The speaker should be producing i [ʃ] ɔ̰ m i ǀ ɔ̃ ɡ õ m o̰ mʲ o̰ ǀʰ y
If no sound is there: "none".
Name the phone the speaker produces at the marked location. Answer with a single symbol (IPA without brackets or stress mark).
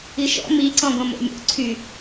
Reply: ʃ